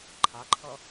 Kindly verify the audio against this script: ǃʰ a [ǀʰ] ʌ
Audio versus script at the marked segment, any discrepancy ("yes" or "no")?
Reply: yes